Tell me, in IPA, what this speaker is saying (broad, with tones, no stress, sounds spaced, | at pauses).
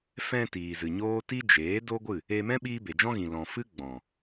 f ɛ̃˧ t iː˨ z ɨ˨ ɲ oː˦ t i˦ d͡ʒ eː˨˦ d o˦ ɡʷ ɨ˦˨ | e˧ m ɛ̃˦ ɓ iː˦ b e˨ d͡ʒ ɔ̃˦ ɣ ĩ˨ l ɔ̃˨ f ɨ˦ ɡ͡b ɔ̃˨